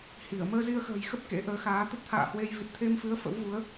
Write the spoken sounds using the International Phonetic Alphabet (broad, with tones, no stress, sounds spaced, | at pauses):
h i˧˩ ə̯ m əː˧ z i˧ ə̯ x ə̤ː˨˩ j x ə˦˥ p̚ k ḛ˧˥ ʔ əː˨˦ x aː˨˦ t̪ ə˦˥ t̚ t̪ʰ a̰ː˧˨ h w e˧ j v i˨˩ t̚ t̪ʰ e˧ m f ɨ˨˦ ə̯ f ə̰˧˥ w v u˨˦ ə̯